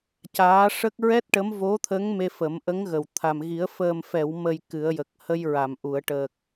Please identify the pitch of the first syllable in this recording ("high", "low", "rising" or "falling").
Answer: rising